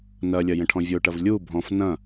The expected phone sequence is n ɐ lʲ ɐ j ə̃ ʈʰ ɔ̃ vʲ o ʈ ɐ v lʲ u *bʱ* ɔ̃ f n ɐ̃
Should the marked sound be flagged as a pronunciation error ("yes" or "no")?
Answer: no